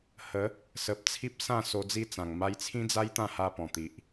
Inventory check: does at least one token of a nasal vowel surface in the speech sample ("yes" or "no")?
yes